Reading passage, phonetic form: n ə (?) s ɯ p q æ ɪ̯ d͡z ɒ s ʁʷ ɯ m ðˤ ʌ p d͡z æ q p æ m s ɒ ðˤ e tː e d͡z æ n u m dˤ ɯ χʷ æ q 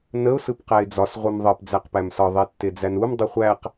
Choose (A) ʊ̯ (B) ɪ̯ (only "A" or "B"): A